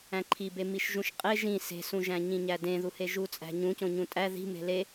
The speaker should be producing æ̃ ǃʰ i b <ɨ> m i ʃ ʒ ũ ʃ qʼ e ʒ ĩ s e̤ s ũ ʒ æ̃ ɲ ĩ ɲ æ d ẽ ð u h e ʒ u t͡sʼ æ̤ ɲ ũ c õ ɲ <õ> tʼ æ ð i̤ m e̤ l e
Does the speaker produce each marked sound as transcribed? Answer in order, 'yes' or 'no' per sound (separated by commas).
no, no